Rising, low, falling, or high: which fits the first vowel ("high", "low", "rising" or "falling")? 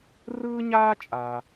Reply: high